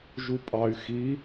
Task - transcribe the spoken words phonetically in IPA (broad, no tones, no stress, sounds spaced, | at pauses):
ʒ u pʼ ɑ y̯ x i